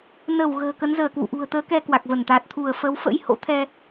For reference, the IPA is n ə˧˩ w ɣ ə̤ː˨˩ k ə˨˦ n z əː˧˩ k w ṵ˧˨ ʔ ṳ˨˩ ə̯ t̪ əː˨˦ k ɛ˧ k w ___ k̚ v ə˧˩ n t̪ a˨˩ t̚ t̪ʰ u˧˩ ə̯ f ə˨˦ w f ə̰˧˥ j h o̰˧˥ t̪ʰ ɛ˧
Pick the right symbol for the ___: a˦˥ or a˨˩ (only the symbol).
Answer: a˨˩